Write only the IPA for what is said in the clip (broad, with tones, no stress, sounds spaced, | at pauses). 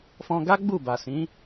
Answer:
f ɔ̃˧ ɡ a˦ ɡ͡b u˦˨ b a˨ s ĩ˨˦